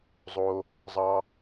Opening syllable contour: low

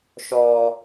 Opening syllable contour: low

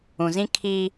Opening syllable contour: low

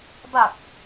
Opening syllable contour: low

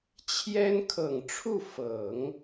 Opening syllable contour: high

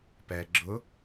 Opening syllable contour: low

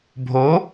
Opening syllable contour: rising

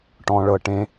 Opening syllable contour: low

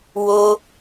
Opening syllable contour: high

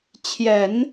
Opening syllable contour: low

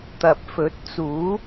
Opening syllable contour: low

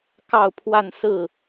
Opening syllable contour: falling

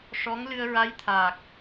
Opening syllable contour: rising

